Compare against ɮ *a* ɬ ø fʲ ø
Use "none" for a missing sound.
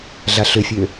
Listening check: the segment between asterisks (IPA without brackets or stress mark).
a